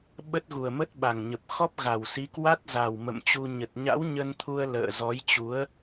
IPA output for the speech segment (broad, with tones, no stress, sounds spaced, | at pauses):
ɓ ə˦˥ t̚ ɣ u˨˩ ə̯ m ə˦˥ t̚ ɓ a˨˩ ŋ ɲ ə˨˩ p̚ x ɔ˦˥ p̚ ɣ a˨˩ w s i˨˦ k w a˦˥ t̚ z a˨˩ w m ə̰˧˨ m t͡ɕ u˧ ɲ ə˨˩ t̚ ɲ a̰˧˥ w ɲ ə˧ n t̪ʰ u˧ ə̯ l ə̰ː˧˨ z ɔ˨˦ j t͡ɕ u˨˦ ə̯